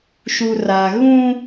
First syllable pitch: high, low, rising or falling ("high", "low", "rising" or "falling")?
low